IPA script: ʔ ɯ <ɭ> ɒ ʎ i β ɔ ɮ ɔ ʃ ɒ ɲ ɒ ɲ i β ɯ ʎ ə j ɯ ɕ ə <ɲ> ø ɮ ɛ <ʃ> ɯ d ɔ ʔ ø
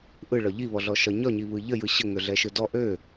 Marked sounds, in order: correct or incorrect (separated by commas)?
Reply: correct, incorrect, correct